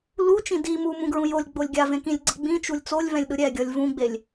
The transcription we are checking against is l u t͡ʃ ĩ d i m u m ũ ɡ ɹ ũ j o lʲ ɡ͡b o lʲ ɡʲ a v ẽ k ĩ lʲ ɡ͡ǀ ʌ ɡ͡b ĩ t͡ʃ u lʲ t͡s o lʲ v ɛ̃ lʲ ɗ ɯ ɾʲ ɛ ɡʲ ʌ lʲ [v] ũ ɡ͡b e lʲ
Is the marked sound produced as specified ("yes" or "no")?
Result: yes